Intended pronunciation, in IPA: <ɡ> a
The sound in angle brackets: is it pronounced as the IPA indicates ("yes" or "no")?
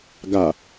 yes